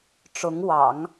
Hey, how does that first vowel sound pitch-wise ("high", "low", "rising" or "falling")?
rising